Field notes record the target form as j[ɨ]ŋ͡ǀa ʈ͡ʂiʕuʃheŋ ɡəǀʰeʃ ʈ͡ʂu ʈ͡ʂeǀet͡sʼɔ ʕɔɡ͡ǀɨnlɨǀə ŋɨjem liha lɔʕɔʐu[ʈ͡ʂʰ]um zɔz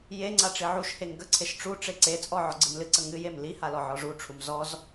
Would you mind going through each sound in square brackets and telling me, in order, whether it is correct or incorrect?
incorrect, correct

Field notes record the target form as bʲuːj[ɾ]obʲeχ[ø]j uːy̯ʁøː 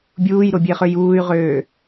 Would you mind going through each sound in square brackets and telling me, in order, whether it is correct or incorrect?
correct, correct

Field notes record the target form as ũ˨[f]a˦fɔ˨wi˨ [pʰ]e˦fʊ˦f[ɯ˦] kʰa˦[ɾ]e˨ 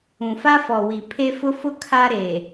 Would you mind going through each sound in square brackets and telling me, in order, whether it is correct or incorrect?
correct, correct, incorrect, correct

